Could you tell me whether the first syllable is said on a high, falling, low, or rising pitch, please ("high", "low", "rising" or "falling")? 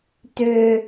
high